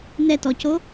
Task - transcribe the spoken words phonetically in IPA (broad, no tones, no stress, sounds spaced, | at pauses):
n ɛ t ɔ c o